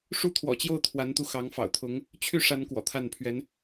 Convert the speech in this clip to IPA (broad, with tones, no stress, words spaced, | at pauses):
ʂu˥˩t̪ʰwɔ̰˨˩t͡ɕjo˥˩ʊ̯ t̪ʰwa˧˥nt̪u˧ xɑ˧˥ŋfɑ̰˨˩ʊ̯t̪ʰʊ˧˥ŋ | t͡ɕʰy˥˩ʂa˧˥n kwɔ̰˨˩t̪ʰa˥˩npʰɥɛ˧˥n